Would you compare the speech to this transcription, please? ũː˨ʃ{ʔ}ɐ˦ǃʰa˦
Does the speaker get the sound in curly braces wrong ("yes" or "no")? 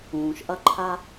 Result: no